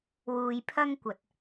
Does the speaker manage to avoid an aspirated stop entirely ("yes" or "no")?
no